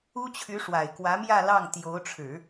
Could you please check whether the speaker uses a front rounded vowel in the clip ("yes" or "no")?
yes